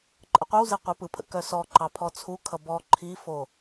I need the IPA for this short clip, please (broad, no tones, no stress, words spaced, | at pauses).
ǃʼəqʷœwze qʷepɯpʰə̰ kœsɔǃɑ pʰɔt͡sʰukʰʌ bɔ ǃʰifo